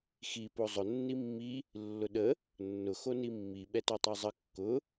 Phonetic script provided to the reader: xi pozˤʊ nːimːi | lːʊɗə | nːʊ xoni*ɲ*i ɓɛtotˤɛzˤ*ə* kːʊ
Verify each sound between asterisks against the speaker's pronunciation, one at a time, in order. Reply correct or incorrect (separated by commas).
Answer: incorrect, correct